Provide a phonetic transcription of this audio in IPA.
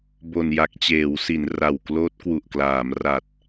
bo˨˩nja˨˩k̚t͡ɕeː˩˦wsi˩˦n ra˨˩wkloː˦˥t̚kwu˨˩ʔklaː˩˦m ra˨˩t̚

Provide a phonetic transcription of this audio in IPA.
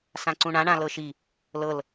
sãǀũɳã ɳãlɤʃi | lɤl

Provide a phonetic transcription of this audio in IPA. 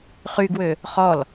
χyɡwø | χɔl

